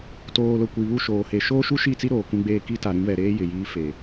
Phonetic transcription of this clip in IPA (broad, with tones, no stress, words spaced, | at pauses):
toː˨lʊ˨ kʷi˨βu˦˨ ʃoː˨he˨ ʃoː˦ʃu˦ʃi˦˨t͡si˦ ɾoː˨kũ˦ɡ͡beː˦ ki˦ta˨ɾĩ˦ βɛ˨ɾeː˦ jɪ˨jiː˦fe˨